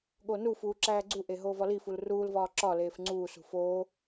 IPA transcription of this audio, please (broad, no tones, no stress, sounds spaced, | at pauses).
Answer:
ɠ o n u f uː ǁ æː ɡ͡ǀ u ʔ e ɦ oː v ɒ l i f u l r uː l v ɒː ǁ ɒ l eː f ŋ͡ǀ uː s ṳ f oː